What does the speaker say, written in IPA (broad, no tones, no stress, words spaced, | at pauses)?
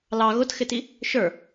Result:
lɑ ɣʊtxɪti | ʃə˞